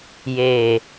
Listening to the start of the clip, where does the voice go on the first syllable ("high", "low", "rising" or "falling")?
low